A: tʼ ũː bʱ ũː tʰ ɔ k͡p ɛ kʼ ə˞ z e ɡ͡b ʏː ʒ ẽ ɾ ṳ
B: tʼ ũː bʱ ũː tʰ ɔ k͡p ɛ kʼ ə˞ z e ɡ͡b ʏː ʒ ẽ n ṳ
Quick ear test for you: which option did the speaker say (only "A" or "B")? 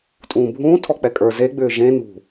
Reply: B